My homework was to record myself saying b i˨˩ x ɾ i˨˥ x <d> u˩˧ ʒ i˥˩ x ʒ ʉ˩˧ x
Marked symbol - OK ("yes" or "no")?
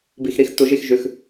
no